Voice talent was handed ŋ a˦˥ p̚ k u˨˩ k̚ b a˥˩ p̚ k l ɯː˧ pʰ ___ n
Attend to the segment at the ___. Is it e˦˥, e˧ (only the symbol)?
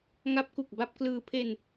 e˧